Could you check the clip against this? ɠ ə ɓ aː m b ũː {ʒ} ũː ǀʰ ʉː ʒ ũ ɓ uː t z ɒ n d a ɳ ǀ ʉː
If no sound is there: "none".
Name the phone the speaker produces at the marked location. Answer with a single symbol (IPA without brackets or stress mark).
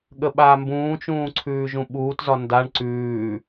t͡ʃ